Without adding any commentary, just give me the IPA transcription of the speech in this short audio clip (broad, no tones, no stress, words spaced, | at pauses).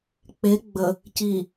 k͡pe ɡ͡bə | ci